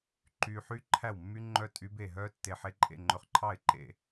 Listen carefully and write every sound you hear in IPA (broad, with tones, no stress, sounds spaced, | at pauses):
ǃ y˨ ħ y˦˥ ǃʰ æ˥˩ w mː y˦˥ ŋ͡ǃ œ˦˥ tʼ y˦˥ b e˥˩ ɦ œ˦˥ tː e˨ ħ e˧˥˧ ǃʼ ḛ˥˩ ŋ͡ǃ ɵ˨ χ ǃʰ ɑ˥˩ ɪ̯ ǃ ḛ˥˩